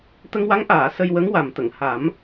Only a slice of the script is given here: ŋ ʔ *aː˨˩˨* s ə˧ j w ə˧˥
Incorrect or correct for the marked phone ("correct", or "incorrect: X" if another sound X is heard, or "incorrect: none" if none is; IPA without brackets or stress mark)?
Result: correct